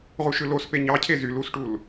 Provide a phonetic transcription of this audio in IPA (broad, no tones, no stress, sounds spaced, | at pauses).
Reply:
ʁ u ʃ ɯ l o s p e ɲ ɑ cʰ e z y l u s ʈ u l